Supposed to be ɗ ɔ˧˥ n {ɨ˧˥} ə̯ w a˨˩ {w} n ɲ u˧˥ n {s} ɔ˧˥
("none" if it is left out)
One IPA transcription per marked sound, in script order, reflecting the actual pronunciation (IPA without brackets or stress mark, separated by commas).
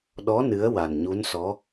ɨ˧˥, none, s